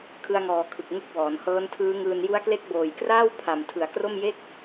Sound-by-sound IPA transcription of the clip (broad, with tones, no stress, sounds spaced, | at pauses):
kʰ ɯ˧ a̯ ŋ ɔː˨˩ kʰ ɯ˨˩ k̚ ŋ u˦˥ k̚ w ɔː˩˦ n h ɤː˦˥ n tʰ ɯː˦˥ ŋ ɯː˧ n j u˦˥ a̯ k l e˦˥ k̚ b oː˨˩ j k r aː˥˩ w pʰ a˨˩ m tʰ ɯ˩˦ a̯ k r o˥˩ m j e˥˩ k̚